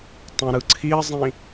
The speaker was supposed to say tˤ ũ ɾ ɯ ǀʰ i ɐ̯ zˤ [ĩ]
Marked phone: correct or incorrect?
correct